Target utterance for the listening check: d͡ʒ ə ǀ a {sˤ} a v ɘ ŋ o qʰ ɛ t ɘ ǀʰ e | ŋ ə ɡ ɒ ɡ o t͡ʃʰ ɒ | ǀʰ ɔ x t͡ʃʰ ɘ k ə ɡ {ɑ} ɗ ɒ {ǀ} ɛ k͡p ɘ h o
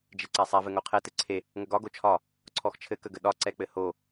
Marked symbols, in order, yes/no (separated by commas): yes, no, yes